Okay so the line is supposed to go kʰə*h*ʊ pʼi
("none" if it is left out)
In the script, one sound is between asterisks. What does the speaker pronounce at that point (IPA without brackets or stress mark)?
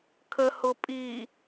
h